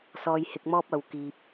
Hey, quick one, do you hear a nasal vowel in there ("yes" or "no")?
no